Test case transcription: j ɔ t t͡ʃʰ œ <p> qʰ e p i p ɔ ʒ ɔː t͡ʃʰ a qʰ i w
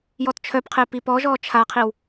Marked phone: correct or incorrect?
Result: correct